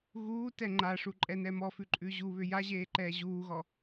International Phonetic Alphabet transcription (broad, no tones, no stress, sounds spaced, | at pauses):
ɣ uː t ɛ ŋ͡ǃ a ʂ u ǃʼ ɛ n ɛ m ɔ f ʉ ǃʼ ʉ ʑ u β ʏ j a ʑ eː ǃ ɛː ʑ uː ɣ ɔ